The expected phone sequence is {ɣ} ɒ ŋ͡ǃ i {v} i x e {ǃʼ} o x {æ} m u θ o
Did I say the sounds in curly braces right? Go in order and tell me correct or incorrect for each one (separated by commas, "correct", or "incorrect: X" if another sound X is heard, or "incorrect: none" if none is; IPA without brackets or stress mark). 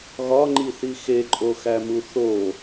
correct, incorrect: θ, correct, correct